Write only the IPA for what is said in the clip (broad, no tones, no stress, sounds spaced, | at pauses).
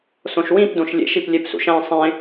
s õ ʃ w ĩ p d õ ʃ lʲ ḛ ʃ i p lʲ e p s ṵ ʃ æ̃ sˤ ẽ